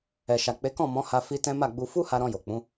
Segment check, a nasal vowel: present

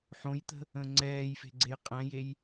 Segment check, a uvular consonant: present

